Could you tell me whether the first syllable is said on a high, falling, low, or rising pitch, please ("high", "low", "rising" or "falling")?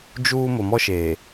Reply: high